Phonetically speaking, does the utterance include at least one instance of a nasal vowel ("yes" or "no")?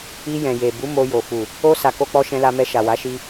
yes